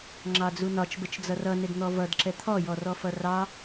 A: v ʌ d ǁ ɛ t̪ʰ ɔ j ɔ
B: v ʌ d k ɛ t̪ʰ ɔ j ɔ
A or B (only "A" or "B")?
A